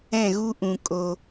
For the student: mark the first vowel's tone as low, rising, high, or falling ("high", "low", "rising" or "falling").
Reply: falling